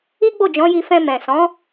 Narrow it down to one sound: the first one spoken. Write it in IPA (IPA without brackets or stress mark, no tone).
i